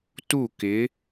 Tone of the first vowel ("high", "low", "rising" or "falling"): falling